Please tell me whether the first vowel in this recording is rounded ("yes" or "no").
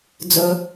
yes